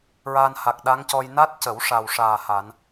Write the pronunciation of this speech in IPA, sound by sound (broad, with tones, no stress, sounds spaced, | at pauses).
ɹ aː˧ n h a˨˩ k̚ ɗ a˧˥ ŋ c ɔ˧ j n a˦˥ t̚ c ə˨˩˦ w ʂ a˨˩ w ʂ aː˨˩ h a˨˩˦ n